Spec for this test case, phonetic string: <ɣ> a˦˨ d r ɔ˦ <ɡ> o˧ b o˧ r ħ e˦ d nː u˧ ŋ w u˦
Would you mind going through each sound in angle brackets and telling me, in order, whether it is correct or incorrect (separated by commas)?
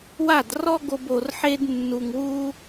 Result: incorrect, correct